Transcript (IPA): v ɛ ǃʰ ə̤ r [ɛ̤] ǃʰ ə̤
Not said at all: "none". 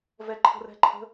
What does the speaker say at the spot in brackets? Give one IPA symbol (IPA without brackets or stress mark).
ɛ̤